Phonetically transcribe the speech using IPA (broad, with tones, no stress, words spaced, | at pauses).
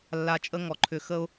lːa˨t͡ʃʼə˧ ŋɔ˨ ǃʰʏ˨xə˧ʊ̯